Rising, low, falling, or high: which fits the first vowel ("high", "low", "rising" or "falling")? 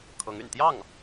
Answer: rising